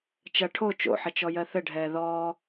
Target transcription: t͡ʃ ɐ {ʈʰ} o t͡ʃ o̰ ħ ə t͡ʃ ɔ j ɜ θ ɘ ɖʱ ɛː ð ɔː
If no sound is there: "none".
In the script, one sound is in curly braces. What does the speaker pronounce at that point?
ʈʰ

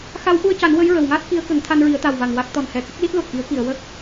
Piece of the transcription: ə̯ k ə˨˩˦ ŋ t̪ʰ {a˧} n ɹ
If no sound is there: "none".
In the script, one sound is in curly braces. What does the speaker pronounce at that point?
a˧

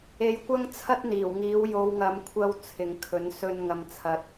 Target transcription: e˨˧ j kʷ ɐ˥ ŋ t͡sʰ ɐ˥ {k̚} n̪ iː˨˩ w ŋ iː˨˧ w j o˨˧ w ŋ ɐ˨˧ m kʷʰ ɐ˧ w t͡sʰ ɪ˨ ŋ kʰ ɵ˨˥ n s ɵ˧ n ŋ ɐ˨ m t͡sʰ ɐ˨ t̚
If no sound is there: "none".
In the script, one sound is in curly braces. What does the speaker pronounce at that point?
t̚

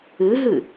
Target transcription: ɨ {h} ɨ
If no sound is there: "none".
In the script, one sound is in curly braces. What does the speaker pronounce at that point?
ɦ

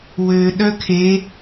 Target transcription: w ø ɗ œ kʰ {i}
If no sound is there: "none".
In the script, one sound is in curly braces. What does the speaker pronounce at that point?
e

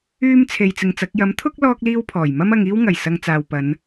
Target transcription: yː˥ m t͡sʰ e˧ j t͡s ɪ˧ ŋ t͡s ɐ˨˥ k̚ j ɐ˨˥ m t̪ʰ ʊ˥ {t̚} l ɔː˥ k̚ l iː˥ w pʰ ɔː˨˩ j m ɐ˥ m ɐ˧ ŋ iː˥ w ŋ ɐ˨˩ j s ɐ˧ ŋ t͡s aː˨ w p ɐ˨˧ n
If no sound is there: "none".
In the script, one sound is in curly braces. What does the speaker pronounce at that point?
k̚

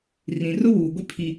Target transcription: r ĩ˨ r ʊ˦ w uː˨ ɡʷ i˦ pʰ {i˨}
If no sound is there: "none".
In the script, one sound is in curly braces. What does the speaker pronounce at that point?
i˦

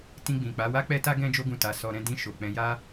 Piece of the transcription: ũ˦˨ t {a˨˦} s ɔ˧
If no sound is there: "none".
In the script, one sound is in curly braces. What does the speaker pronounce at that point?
a˨˦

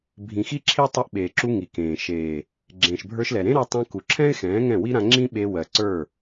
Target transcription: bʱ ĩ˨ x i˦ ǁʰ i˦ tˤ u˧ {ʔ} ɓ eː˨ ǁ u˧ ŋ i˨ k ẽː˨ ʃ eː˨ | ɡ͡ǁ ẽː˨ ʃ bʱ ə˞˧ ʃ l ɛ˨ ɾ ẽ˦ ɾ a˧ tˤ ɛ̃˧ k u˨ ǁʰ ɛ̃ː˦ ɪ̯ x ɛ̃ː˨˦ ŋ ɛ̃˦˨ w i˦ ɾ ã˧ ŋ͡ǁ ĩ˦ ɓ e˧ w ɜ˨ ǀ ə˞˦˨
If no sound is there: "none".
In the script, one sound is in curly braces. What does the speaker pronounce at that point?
ʔ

